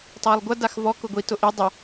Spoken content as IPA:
tˤ a lˠ ɡʷ ɐ d a x v ɔ k ʊ ɡʷ i t ʊ ʔ i dˤ ə

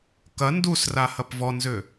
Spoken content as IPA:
k ɐ n d u s r a h ɐ p v ɔ n z ʏ

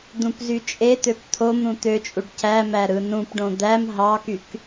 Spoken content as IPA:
d̪ ũ p z y t͡ʃʼ e t̪ ø p t̪ʰ o m ɾ ũ t̪ ø t͡ʃʼ u ɖ c æ m æ ɾ ɯ n ũ p ɖ õ d̪ æ m ɦ ɑ k y k

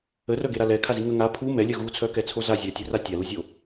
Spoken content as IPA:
ə r œ ɡ e ɾ a l ɛ kʰ a z i ŋ ə ŋ a pʰ u m ɛ lʲ œ ɣ u t͡sʰ œ k ɛ t͡sʰ o z a zʲ œ tʲ œ r a tʲ a l u zʲ o

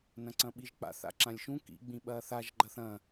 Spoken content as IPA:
n ɐ̃ ǀ ɐ̃ ɓ i ʒ k͡p a̰ θ a̰ ǁ ã lʲ ʃ ũ k ḭ ɡ͡b ĩ ɓ ɐː θ a ʒ ɡ͡ǃ ɐ θ ɐ̃

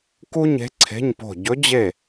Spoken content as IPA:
k u˥ ɲ e̤˧˥ ǀʰ e̤˧˥˧ ɲ p o̤˦˨ ɟ ɵ˧˥ d͡ʑ e˦˨

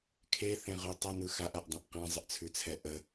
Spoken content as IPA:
kʰ e θ ẽ ʁ ʉ tˤ ə n ɯ x a ʔ a ʔ dˤ ẽ ʔ q ɛ̃ zˤ ə ʔ t͡sʰ ʉ t͡sʰ ɛ ʔ ə

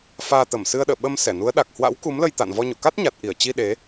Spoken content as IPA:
f aː˧ t̪ ə˧˩ m s ɨ˧ ə̯ ɗ ə̰ː˧˨ ɓ ə˧ m s ɛ˧˩ n u˨˦ ə̯ ɗ a˨˩ k̚ h w a̰˧˥ w k u˨˦ m l ə˧ j t̪ a̰ː˧˨ n v ɔ˧ ɲ o̰˧˨ k a˦˥ t̚ ɲ a˨˩ t̚ ʔ i˧˩ ə̯ t͡ɕ i˧ ɗ e˨˦

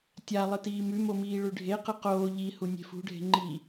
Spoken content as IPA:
tʲ a lˠ ɨ t iː m ʉ m o m iː ɭ ʉ ɖʱ e q ɨ q oː ʎ i h u nʲ e̤ f ṳ ɖʱ e̤ ŋ͡ǃ i

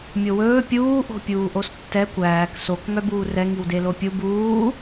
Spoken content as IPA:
mʲ o w ɵː pʲ uː ʔ o̤ pʲ uː ʔ o s tː ɛ kʷ æː k s o k ŋ œ b uː r ɛ ŋ i w d e l o pʲ u b uː

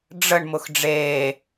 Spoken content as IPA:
ɖ͡ʐ ə ɳ m ʊ x ɖ͡ʐ eː

